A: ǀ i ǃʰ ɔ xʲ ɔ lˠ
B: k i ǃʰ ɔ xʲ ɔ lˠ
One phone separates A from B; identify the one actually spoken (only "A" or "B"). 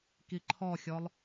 B